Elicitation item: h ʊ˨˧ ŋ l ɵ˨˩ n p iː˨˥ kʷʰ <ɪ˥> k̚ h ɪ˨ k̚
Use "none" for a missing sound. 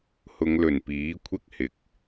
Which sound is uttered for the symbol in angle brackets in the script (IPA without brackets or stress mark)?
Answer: ɪ˥